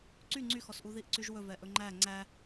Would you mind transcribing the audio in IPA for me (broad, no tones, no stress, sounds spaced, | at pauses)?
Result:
ǀ y ŋ͡ǀ y x ɔ s ʔ u ð i ʔ ǀ y ʒ w ɵ v ɛ ʔ ɵ ŋ͡ǃ æ ŋ͡ǀ æ